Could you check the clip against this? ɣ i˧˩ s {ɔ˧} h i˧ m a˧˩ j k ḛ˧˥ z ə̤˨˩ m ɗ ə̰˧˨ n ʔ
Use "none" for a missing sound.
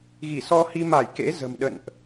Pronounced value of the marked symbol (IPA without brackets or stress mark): ɔ˧